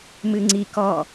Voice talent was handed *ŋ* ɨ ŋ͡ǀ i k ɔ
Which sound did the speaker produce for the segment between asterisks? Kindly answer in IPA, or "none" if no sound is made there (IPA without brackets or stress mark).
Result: m